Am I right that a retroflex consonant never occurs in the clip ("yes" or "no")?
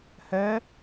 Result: yes